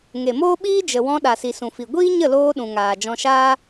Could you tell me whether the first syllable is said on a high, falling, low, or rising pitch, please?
low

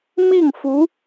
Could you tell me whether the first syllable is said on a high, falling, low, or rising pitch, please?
falling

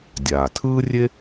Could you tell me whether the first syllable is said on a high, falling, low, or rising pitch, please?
low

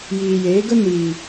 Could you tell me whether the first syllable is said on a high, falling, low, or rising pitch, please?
low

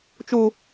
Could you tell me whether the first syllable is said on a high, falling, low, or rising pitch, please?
high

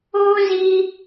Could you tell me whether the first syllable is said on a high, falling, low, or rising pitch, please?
high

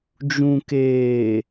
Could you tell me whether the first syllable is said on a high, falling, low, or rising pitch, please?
low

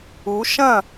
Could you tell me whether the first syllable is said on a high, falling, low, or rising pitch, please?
rising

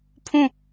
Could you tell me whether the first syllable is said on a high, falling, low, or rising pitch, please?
falling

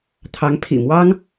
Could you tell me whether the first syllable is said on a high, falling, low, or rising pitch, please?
rising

